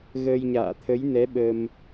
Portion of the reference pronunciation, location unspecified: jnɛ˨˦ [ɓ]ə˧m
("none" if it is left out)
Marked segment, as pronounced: ɓ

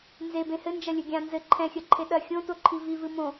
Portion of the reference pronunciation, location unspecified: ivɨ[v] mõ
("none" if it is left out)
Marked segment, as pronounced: none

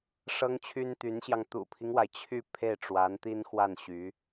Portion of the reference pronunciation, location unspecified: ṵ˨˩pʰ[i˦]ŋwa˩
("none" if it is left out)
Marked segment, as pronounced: i˦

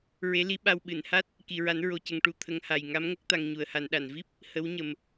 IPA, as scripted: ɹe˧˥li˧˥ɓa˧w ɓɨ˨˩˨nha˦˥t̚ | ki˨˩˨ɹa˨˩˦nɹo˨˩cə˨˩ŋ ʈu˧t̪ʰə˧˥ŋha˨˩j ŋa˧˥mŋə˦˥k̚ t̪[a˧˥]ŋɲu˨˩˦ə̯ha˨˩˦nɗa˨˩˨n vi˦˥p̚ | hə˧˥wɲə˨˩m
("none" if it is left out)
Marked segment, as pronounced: a˧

